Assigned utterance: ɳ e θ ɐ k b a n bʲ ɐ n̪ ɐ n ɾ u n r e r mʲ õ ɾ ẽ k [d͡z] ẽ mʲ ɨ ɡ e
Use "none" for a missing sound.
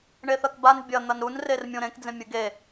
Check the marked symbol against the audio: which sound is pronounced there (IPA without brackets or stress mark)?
d͡z